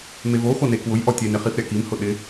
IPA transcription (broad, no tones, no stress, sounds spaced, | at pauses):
m e v o x o n e k w ʊ j ʔ ɔ tʲ e n ɪ χ i f ɾʲ a k i m h ʊ ɗ ɪ